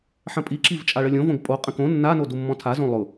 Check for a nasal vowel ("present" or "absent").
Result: present